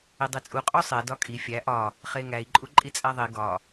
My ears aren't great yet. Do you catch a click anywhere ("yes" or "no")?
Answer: yes